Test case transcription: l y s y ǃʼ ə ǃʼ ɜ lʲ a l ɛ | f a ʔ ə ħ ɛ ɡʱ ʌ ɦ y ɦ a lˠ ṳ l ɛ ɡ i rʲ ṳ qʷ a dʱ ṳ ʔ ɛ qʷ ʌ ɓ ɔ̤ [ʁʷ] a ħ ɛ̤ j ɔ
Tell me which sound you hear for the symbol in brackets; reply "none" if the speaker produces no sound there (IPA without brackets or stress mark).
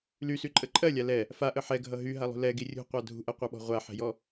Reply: ʁʷ